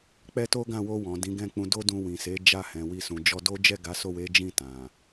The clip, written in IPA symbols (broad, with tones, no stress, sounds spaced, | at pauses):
k͡p ɛ˦ t o˦ ɡ ã˦˨ w o˧ w ɔ̃˨ d ĩ˨˦ ɡ ɛ̃˦˨ k͡p ũ˧ d o˦ d ũ˧ w ĩ˨ s e˨˦ d͡ʒ a˦˨ h ɛ̃˨ w i˧ s ũ˨ d͡ʒ ɔ˧ d o˦ d͡ʒ ɛ˦˨ ɡ a˨˦ s o˦˨ w e˨˦ d͡ʒ ĩ˦˨ t ã˨